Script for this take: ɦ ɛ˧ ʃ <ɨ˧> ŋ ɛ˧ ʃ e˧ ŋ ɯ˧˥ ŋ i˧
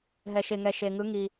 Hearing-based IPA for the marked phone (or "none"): e˧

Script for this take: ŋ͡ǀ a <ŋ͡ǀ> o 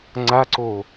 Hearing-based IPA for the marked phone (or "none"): ǀ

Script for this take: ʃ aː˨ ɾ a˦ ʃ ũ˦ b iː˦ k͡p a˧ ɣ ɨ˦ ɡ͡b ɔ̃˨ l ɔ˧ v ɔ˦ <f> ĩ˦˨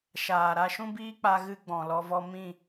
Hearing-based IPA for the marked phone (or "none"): m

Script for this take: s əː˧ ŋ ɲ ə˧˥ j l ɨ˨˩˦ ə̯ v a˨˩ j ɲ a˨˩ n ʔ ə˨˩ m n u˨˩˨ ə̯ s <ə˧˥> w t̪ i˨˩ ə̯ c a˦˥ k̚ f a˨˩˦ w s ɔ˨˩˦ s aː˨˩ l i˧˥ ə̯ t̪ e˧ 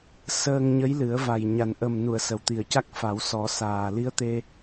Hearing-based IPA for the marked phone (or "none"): ə˨˩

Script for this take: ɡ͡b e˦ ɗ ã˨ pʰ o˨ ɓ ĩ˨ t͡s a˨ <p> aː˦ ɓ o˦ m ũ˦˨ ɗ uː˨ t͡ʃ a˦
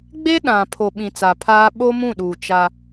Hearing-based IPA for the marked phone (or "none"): pʰ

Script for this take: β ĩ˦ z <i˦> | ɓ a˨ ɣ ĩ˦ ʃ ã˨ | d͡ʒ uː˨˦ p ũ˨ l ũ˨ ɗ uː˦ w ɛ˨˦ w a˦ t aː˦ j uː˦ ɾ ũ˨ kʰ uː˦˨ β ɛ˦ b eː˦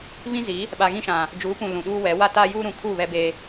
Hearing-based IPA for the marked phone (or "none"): i˨˦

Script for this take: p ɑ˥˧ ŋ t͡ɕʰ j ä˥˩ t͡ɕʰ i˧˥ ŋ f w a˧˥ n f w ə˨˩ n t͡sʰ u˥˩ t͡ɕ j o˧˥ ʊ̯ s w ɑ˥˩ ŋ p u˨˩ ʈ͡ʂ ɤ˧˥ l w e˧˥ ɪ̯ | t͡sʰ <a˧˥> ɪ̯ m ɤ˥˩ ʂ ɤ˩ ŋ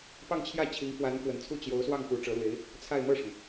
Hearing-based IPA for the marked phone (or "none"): a˥˧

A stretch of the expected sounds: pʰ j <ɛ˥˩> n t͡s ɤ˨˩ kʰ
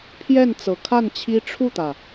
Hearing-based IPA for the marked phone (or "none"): ɛ˥˩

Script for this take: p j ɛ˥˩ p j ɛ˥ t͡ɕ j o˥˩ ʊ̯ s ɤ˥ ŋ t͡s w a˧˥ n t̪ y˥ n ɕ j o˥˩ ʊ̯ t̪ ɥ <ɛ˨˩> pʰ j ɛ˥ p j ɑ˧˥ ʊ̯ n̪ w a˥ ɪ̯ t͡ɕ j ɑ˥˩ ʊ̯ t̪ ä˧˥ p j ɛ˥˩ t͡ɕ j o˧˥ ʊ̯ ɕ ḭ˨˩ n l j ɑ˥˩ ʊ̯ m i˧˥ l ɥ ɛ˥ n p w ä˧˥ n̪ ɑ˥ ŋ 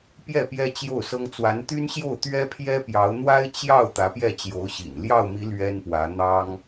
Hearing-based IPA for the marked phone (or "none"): ɛ˥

